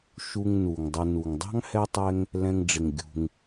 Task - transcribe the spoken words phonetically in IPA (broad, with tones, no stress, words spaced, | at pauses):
ʃu˨ŋ nu˩ŋdˤə˨ nu˩ŋdˤɑ̤˥ŋhɛ˦ tˤɛ˦ŋ | lɛ̃˨ŋɖ͡ʐɪ˩ŋ ɡʲṳ˨ŋ